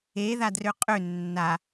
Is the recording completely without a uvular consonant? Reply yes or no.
no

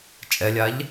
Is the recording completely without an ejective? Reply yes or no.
no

